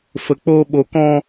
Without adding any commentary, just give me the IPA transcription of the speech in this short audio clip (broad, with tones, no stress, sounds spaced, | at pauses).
f ə˨ k͡p oː˧ ɓ o˨ k ɔ̃˧